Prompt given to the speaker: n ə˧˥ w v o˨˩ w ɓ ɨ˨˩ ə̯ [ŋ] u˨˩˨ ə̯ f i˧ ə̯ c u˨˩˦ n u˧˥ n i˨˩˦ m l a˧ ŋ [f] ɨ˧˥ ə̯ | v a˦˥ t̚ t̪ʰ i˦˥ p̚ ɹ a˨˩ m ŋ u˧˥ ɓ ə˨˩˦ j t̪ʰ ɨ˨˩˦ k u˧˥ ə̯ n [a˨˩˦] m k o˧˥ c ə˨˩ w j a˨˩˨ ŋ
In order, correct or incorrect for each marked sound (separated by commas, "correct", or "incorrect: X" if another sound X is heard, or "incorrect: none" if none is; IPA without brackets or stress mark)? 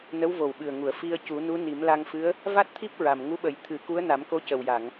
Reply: correct, correct, correct